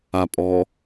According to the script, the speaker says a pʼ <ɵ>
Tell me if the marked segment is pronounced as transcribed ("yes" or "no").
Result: no